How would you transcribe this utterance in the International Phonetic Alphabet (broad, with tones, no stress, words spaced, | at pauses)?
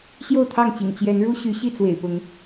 ɕjo˥˨ʊ̯t̪ʰɑ˥˨ŋt͡ɕḭ˨˩ŋ t͡ɕjɛ˨˦nɻu˦ɕy˨˦ ɕi˥˨ t͡swḛ˨˩ɪ̯pʊ˨˦ŋ